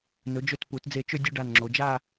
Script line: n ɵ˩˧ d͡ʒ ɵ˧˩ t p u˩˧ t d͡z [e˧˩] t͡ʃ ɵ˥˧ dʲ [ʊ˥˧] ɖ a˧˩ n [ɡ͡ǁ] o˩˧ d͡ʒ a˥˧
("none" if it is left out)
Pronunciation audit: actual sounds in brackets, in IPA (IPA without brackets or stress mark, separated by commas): e˧˩, ɵ˥˧, ŋ͡ǁ